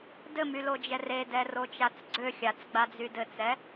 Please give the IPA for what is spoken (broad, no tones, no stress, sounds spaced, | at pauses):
d ɘ m y l o d͡ʒ ɛ r e d ɛ r o t͡ʃ a t͡s ɡ͡ǀ ø xʲ a t͡s ɡ͡b a d͡z y d ɘ t͡s ɛ